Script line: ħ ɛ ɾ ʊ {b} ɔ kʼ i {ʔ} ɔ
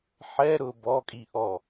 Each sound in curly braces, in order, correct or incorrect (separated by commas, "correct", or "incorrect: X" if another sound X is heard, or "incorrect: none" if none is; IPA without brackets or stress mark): correct, correct